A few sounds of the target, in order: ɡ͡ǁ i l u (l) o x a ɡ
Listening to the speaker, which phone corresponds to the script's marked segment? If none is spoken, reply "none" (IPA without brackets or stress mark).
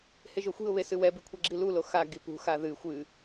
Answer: l